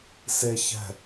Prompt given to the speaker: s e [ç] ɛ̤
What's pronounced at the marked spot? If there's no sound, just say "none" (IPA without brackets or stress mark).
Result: ç